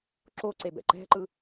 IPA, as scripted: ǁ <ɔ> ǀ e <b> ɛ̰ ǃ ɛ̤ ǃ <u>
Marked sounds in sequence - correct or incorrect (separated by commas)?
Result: incorrect, correct, incorrect